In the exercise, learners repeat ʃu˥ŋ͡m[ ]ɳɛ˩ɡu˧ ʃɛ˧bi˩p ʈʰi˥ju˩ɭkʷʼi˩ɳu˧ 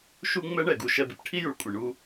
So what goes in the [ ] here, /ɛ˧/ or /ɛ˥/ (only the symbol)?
ɛ˥